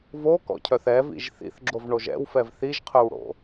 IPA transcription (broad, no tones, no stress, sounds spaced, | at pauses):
v o k ɔ̰ cʰ œ θ ɛ v ḭ ʒ θ ḭ θ ɡ͡ǁ o v ɳ o ʒ ɛ̰ w f ɛ v θ i ʒ qʰ œ w ɽ o̰